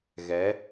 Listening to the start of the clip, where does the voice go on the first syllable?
rising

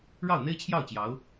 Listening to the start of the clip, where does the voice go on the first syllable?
falling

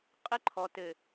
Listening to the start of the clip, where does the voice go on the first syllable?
high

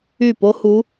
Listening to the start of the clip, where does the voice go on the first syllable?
falling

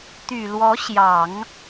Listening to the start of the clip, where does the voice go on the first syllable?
low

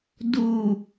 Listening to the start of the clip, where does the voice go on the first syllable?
low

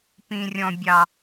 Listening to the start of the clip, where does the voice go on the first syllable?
low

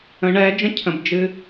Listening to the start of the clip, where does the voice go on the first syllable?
rising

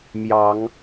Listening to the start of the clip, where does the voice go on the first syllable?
rising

